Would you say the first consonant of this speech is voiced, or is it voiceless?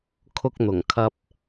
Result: voiceless